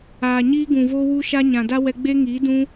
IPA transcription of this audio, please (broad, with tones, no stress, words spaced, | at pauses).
aː˨ɲiː˦ɡũ˨ voː˦wu˦ʃa˦ ɲã˨da˦ wɛ˧ɡ͡be˦ŋiː˨˦ dũ˦